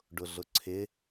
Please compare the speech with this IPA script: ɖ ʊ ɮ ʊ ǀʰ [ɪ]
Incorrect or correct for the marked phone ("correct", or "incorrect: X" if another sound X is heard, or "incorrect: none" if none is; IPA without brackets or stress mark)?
correct